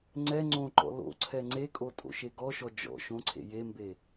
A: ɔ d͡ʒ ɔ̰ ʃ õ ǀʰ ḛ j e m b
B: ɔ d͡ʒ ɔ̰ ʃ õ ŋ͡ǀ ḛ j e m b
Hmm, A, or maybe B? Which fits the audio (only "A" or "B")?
A